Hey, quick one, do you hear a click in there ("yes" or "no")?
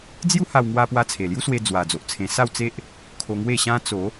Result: no